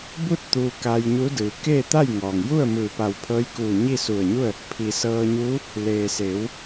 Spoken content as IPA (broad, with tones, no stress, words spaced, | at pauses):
bu˥˨t̚ t̪uː˧ka˧jɲu˧˥ dɯː˩˧keː˥˨ t̪a˥˨jŋɔː˩ŋju˥˨ə̯ mɯː˧˩pa˧˩wpʰɤː˧˥jkuː˧˩ ɲi˥˨su˧˩ə̯ɲu˥˨ə̯ | pʰi˩ sɤː˧ɲuː˧˥ | leː˩se˩˧w